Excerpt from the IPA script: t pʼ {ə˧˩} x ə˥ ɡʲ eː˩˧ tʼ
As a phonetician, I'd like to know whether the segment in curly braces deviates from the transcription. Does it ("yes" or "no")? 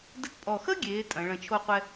yes